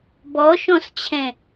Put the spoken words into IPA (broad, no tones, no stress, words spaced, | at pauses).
bɔʃɔ̃st͡ɕʰɛ̃